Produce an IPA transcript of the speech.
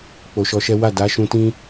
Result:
k͡po˨ʃɔ˧ʃɛ˦ wa˦˨da˨˦ʃũ˧tĩ˦

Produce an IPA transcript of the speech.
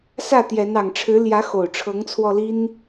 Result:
sä˥˨t̪jɛ˨˦n ɑ˨˩ŋʈ͡ʂʰɻ̩˨˦ ljä˨˦xo˨˩ʊ̯ ʈ͡ʂʰɤ˨˦ŋt͡sʰwɔ˧li˦n

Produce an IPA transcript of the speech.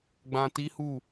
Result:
ɡ͡bã˧ti˦hu˦˨

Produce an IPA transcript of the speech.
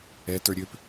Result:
ɛ tə˞ɾʲøp

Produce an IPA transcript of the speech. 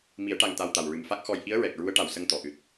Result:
mi˨˩˦ə̯ʈa˨˩ŋt̪a˨˩w t̪a˨˩wɹɨ˨˩m fa˦˥k̚xɔ˧j ʔi˧˥ə̯ɹɛ˨˩k̚ ɹu˧˥ə̯ʈa˨˩wsə˧ŋ t̪ɔ˨˩˨ʔɨ˨˩t̚

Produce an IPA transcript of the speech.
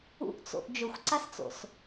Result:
ṵʔt͡so̰ʔ d͡ʒɵxʷǀast͡so̰s

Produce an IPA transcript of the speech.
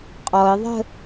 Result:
qʼɔɪ̯ðˤə̤

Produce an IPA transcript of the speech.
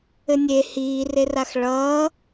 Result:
ɘnʲe hiː reraxɭʌː

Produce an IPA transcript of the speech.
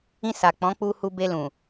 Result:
ĩ˧sa˨ k͡pɔ̃˨˦k͡pu˧hu˧ be˧lũ˨

